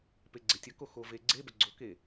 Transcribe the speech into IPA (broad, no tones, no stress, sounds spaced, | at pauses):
p e ɡ͡ǀ e tʲ ə k o x o v e ɡ͡ǀ e b ə ɡ͡ǀ o k e